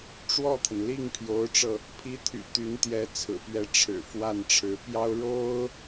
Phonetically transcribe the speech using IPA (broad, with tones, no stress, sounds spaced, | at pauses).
ʈ͡ʂ w ɔ˥˩ t̪ʰ ə˩ n l i˥˩ ŋ pʰ j o˧˥ ʊ̯ ʈ͡ʂ ɤ˧ | pʰ i˧˥ t̪ʰ y̰˨˩ t̪ y˧˥ n t̪ j ɛ˧˥ t͡sʰ ɹ̩˨˩ p ɥ ɛ˧˥ ʈ͡ʂʰ ɻ̩˨˩ f w a˥˩ n ʈ͡ʂʰ ɻ̩˧˥ p j ɑ˥ ʊ̯ ɻ o˥ ʊ̯